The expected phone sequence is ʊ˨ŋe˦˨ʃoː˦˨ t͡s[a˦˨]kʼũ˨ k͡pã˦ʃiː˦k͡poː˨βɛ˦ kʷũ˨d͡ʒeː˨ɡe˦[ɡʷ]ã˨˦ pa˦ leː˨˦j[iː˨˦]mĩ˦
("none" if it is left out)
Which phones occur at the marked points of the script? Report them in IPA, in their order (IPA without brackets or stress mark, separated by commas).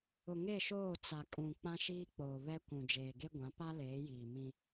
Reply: a˨, ɡʷ, iː˨